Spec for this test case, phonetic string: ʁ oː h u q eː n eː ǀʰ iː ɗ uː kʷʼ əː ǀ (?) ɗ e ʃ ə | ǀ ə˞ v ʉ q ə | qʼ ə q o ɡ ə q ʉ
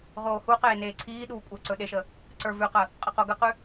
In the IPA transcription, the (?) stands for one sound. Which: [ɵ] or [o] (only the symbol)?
ɵ